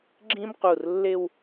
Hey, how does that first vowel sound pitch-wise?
high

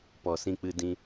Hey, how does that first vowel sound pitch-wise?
low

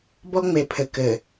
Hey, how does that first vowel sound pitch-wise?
high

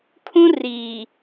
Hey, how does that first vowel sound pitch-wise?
high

